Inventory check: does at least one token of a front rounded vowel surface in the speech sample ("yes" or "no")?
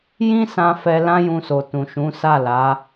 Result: no